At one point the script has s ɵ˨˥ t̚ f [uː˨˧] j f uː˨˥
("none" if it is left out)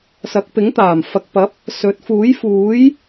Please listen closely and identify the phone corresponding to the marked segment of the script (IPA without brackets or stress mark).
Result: uː˨˥